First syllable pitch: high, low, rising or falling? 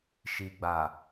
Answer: low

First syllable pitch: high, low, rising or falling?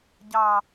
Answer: low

